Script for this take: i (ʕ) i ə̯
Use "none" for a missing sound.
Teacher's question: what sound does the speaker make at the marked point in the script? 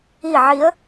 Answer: ʕ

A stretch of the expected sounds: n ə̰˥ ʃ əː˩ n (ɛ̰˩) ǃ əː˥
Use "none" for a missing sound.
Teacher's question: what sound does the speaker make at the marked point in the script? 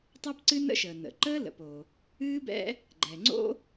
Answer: ə̰˩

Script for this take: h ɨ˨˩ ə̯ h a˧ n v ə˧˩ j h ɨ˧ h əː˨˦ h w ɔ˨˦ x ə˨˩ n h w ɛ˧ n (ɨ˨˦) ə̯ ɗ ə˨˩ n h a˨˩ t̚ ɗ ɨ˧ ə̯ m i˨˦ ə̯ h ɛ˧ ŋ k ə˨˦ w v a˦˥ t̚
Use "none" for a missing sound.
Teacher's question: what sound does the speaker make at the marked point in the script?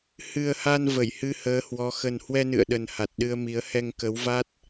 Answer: ɨ̰˧˨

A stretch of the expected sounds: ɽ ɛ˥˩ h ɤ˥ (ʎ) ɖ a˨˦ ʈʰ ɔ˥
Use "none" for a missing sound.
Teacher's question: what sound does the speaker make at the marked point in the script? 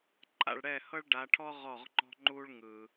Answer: ɭ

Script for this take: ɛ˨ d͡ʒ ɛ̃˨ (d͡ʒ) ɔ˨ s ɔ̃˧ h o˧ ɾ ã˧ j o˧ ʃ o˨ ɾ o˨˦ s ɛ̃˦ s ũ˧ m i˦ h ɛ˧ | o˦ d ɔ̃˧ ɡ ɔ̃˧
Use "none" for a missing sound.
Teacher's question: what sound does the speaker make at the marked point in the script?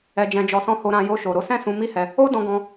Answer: d͡ʒ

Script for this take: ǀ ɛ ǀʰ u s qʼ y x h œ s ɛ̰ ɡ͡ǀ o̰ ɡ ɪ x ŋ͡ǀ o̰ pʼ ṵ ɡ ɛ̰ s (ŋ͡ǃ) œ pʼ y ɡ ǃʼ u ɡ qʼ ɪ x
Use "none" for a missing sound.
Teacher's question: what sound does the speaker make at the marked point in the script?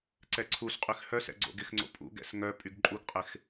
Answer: ŋ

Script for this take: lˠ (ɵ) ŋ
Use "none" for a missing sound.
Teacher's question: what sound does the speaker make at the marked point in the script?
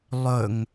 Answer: ɵ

